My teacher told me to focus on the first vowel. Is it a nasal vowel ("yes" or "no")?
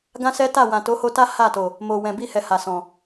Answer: yes